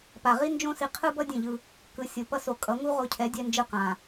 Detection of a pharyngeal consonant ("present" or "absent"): absent